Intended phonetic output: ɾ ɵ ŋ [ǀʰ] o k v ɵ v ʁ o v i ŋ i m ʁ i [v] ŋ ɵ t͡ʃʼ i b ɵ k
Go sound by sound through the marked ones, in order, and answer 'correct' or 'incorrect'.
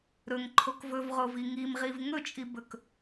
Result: incorrect: ǃʰ, correct

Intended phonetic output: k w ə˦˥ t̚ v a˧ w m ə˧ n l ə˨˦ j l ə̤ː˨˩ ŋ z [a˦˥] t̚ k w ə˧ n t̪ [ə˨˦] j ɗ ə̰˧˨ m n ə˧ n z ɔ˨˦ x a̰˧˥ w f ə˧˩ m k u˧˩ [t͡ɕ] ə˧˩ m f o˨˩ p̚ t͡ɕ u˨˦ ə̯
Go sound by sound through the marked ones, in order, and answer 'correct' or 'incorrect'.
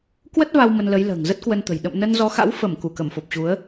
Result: incorrect: ə˦˥, incorrect: ə̤˨˩, incorrect: k

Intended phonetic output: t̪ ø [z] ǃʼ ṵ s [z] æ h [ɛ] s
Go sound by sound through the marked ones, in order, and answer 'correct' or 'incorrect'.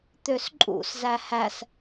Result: incorrect: s, correct, incorrect: æ

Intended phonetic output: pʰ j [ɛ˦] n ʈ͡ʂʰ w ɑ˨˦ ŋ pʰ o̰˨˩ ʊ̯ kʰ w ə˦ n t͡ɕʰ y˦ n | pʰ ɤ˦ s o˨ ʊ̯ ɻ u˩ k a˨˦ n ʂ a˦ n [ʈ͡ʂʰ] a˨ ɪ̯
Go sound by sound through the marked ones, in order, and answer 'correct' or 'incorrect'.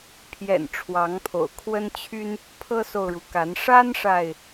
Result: incorrect: ɛ̰˨˩, incorrect: ʂ

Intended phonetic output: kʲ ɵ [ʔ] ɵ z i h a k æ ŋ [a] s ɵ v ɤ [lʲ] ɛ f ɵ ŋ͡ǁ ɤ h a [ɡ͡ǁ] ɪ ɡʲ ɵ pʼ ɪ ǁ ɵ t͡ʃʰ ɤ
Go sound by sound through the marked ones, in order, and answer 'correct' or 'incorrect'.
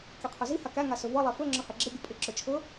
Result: incorrect: qʰ, correct, incorrect: lˠ, correct

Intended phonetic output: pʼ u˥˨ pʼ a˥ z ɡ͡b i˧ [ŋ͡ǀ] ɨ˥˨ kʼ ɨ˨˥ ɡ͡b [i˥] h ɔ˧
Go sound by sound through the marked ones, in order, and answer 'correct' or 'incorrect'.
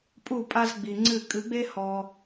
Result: correct, incorrect: e˥

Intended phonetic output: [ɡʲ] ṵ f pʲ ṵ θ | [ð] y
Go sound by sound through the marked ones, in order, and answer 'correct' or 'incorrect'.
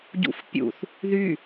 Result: incorrect: ɟ, correct

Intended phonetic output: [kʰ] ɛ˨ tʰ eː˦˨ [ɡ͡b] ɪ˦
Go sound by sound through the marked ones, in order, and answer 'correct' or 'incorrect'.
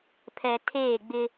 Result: incorrect: pʰ, correct

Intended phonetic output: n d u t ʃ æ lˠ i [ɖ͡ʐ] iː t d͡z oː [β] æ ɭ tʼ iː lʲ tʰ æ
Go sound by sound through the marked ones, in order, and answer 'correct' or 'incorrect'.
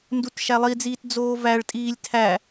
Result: incorrect: d͡z, incorrect: v

